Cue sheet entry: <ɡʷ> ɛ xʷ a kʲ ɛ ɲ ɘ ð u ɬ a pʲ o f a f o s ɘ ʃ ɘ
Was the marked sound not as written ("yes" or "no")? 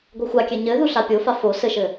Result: no